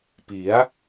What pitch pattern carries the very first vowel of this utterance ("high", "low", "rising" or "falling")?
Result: rising